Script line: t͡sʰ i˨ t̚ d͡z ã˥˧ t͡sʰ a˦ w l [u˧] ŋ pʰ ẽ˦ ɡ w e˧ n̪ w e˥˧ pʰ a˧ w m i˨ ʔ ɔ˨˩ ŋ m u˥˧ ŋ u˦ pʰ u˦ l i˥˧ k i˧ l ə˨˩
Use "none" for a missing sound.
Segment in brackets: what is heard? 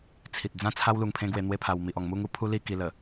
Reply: u˧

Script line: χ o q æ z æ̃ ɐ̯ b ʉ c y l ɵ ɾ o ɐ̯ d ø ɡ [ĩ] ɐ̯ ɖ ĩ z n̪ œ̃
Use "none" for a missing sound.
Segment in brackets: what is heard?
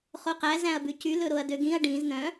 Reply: ĩ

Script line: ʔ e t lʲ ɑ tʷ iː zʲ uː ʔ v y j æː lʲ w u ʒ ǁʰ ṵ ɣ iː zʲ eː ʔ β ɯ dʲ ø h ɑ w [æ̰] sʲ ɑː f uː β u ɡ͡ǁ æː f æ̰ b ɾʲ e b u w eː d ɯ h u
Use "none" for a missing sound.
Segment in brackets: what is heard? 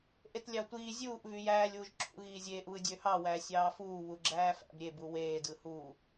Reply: æ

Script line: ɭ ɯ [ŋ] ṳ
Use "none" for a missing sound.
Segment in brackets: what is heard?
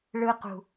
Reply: q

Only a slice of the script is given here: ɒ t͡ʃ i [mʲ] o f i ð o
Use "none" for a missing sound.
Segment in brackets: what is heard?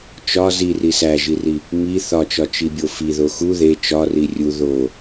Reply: bʲ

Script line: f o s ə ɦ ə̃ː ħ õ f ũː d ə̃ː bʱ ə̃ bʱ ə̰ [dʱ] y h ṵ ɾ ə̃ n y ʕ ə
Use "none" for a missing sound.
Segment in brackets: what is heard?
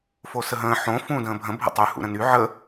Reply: tˤ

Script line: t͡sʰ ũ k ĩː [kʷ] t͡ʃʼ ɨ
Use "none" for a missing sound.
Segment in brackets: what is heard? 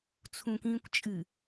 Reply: kʷ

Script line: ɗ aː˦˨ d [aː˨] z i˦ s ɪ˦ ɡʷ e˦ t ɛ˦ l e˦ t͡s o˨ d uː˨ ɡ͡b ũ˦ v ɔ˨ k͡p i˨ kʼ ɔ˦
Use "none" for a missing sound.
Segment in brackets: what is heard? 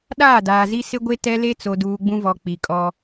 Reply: aː˨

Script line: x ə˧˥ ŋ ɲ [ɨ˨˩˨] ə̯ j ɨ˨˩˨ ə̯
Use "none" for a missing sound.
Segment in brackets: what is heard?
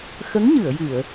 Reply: ɨ˨˩˨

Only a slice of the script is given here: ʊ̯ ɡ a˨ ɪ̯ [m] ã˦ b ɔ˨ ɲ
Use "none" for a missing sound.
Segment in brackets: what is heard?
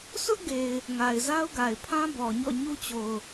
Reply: pʰ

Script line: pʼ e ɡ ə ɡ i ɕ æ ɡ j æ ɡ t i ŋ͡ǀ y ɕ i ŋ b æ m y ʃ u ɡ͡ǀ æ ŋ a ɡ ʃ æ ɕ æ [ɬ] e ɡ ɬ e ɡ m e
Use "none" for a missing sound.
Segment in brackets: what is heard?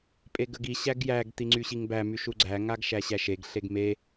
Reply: ʃ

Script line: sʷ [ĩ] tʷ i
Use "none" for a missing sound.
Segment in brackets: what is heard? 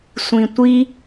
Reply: ĩ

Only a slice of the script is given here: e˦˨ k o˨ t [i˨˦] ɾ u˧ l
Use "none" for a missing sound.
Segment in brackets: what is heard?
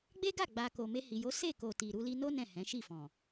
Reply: i˨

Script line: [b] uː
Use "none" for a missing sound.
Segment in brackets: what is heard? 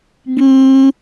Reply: b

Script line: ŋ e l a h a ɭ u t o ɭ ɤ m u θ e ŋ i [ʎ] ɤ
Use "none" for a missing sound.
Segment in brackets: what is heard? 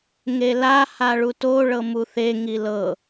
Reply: l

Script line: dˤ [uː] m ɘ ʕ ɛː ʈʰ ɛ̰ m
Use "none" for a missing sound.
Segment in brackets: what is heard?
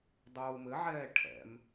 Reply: uː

